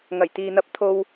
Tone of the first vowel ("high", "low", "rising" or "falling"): low